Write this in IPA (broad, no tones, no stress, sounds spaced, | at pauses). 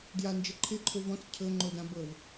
d j a n d͡ʒ ə ǃʰ ɪ ǃʰ o v ɔ̃ t͡s cʰ ɤ ŋ͡ǃ o d ã b ɤ v